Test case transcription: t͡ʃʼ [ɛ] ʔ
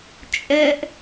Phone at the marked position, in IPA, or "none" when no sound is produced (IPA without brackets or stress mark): ɛ